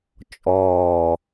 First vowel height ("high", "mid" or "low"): mid